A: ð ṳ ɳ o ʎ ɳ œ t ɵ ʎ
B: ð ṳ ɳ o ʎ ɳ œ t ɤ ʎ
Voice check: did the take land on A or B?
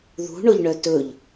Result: A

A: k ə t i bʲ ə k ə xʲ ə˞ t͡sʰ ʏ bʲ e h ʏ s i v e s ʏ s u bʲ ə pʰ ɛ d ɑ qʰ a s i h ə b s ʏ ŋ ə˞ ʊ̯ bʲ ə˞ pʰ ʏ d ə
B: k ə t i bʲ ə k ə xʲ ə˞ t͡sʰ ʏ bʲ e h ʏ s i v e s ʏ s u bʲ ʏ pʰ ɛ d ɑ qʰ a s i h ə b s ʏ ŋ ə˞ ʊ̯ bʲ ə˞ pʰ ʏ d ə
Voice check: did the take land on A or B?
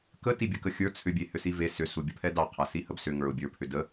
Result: A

